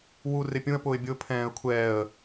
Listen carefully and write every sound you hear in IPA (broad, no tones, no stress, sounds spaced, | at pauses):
w u r ɪ pʲ ũ ə̯ p ʊː ɪ̯ bʲ ʊː pʰ ɛ̃ː ə̯ kʷʰ ɛː ə̯